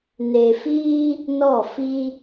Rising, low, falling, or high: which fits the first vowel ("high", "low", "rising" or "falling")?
low